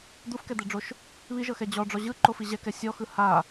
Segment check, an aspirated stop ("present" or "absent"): absent